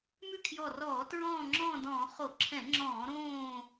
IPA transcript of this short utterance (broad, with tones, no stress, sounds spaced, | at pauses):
m ʉ˥˨ kʰ j ɔ˧˩ r ɔː˧˩˧ t ɹ ɔ̃ː˥˨ ŋ͡ǁ ɔ̃ː˥˨ d ɔ̃ː˧˩˧ χ o˧˩˧ ǁʰ ɛ̃˧˩˧ ŋ͡ǁ ɔ̃ː˧˩˧ ɾ õː˥˨